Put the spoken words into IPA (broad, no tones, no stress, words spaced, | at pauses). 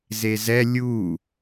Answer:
zezɛ lʲu